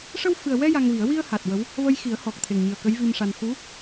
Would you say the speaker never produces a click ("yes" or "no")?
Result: yes